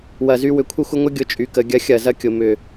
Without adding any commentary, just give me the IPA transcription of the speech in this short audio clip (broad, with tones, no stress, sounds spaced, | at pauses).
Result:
w ɐ˧˩˧ z y˦ w ʏ˩˧ kʷʰ ə˦ xʷ ə˦ ŋʷ ɐ˦ ɡʲ ʊ˨˥ t͡ʃʼ y˩˧ k ə˩˧ ɡʲ ɐ˨˥ xʲ ɐ˧˩˧ z ɐ˦ kʲ ʊ˩˧ m ʏ˨˩